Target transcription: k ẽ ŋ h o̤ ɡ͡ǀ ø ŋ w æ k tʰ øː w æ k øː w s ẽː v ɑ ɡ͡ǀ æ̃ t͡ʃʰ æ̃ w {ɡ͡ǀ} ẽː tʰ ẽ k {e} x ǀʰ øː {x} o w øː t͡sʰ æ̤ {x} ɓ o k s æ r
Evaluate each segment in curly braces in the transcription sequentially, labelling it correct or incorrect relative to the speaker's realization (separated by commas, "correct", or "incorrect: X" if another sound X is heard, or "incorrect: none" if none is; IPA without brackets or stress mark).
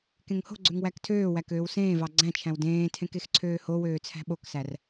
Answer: incorrect: d, correct, incorrect: h, incorrect: none